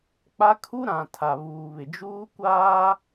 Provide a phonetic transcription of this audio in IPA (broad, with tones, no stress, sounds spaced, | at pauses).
k͡p a˦ kʰ u˦ ɾ ã˨ tʰ a˨ β uː˨ β ɪ˨ d͡ʒ uː˦ kʷ aː˦